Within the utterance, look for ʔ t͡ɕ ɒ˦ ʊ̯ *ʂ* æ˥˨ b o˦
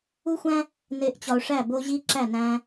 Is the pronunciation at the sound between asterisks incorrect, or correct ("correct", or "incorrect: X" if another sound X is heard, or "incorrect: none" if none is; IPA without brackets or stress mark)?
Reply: correct